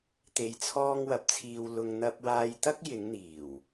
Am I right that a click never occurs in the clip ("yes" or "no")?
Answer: yes